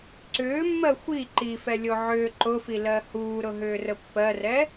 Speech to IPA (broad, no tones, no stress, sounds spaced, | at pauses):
ǀ ʏː mː ɜ xʷ i ǃ i f ɛ lʲ o ʕ ʏː ǃ ʊ f i l ɜ h uː ɾ ʊ ɦ ʏː r ə pː ɜ r ɛ